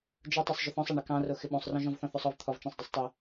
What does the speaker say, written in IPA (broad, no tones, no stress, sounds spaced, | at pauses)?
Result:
d͡ʒ ʊ tˤ ɑ sˤ ʒ ʏ θ ɔ̃ sˤ a ɳ ɪ k ɑ̃ r o x ɪ ɓ õ sˤ r ɔ̃ ʒ ɔ̃ v θ ɔ̃ θ o sˤ ɔ v t̪ʰ ɔ v t͡ʃ ã sˤ dˤ ʏ sˤ tˤ ɪ